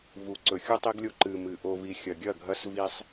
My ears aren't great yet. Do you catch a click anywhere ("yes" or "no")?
yes